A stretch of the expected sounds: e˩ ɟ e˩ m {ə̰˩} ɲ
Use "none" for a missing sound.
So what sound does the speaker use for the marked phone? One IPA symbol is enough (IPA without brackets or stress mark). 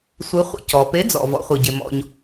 ɔ̰˩